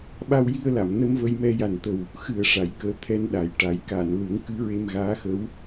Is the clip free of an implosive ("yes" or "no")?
no